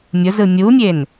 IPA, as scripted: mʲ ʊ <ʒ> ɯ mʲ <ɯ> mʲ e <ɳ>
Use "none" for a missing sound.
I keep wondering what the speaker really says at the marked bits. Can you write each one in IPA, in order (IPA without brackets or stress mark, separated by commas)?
z, u, n